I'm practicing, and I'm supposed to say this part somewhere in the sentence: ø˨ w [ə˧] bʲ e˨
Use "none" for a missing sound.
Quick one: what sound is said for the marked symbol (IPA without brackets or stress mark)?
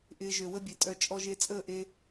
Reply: ə˦